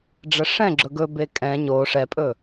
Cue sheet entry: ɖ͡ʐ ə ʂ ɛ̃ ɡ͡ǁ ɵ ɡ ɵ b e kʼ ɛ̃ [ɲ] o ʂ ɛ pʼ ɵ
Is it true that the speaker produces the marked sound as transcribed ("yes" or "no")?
yes